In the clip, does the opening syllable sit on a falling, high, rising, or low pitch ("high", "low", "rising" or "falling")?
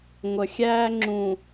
low